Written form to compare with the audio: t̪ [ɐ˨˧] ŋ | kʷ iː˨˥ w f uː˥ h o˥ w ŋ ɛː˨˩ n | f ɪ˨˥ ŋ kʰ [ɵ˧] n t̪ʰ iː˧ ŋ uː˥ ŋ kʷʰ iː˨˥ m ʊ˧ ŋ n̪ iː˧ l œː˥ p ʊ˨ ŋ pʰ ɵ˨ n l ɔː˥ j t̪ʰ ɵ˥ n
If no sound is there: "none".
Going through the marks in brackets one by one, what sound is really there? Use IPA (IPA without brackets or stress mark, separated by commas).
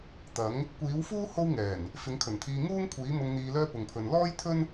ɐ˨˥, ɵ˨˩